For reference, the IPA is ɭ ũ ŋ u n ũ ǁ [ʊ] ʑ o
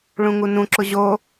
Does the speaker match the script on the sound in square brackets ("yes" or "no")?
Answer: yes